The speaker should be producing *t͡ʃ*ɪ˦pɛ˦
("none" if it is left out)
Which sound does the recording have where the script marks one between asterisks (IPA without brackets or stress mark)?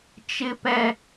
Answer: t͡ʃ